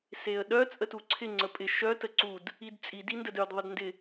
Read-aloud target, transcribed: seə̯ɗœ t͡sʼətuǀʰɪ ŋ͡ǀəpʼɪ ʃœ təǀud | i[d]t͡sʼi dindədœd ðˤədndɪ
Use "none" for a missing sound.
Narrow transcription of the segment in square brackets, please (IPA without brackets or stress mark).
d